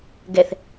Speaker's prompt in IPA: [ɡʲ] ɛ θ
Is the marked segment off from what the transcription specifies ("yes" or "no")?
yes